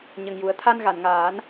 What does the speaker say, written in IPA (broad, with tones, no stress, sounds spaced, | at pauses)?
ɲ ə˨˩ ŋ j u˨˩ ə̯ t̪ʰ a˧ n ɣ a˨˩˨ n ŋ aː˨˩˦ n